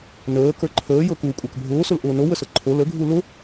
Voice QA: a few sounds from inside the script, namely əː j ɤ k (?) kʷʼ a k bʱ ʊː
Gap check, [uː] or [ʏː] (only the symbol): uː